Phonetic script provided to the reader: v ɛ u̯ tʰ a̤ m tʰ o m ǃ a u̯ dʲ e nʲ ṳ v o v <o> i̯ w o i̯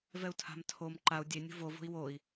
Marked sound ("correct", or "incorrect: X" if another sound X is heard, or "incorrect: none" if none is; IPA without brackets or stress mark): incorrect: o̤